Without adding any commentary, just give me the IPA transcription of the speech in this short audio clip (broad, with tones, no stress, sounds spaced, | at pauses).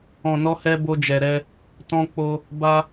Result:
ɔ̃˨ n ɔ˧ h ɛ˧ b o˧ d͡ʒ ɛ˨ ɾ ɛ˧ | t ɔ̃˧ k͡p o˧ | b a˧